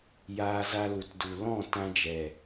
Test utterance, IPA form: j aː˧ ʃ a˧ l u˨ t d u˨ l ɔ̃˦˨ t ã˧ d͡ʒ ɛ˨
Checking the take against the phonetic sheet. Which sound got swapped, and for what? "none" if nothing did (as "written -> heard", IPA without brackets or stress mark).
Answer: ʃ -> z